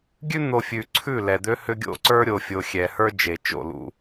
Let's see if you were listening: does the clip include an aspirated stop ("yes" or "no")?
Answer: yes